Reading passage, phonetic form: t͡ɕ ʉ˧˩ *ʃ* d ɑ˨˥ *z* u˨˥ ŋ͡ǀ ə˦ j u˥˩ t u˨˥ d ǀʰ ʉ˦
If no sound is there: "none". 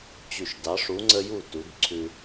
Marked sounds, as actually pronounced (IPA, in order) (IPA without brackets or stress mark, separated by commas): ʃ, ʂ